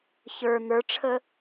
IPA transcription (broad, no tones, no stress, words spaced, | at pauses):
çə˞ n̪ə˞ʈ͡ʂʰə